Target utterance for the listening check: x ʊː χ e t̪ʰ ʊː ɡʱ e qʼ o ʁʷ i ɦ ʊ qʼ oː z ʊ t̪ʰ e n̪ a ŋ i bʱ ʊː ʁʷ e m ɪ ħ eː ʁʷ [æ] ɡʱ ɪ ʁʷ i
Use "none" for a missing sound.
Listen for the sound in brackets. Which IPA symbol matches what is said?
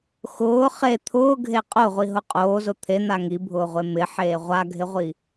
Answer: a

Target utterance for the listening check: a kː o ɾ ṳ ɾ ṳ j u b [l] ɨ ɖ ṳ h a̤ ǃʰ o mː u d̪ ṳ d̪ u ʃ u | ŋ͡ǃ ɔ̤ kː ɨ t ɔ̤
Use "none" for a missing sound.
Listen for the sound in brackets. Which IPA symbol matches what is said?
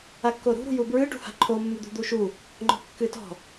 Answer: ɹ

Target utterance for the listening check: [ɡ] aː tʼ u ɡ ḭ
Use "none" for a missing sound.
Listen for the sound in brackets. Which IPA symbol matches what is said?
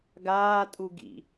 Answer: ɡ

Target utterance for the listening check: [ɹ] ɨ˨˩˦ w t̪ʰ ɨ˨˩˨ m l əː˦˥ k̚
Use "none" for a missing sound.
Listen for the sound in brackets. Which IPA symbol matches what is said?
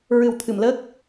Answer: ɹ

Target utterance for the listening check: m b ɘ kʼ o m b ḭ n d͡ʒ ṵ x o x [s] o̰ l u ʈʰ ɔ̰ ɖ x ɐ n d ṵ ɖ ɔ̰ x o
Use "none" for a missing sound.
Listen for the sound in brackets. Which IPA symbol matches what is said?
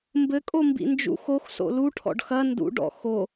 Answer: s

